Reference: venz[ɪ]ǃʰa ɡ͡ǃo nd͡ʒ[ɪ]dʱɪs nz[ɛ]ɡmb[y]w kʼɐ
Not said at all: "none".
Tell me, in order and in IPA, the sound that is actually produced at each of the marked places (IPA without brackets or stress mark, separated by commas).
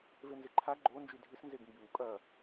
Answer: ɪ, y, e, y